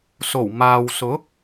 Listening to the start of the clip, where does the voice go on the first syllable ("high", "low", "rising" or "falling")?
low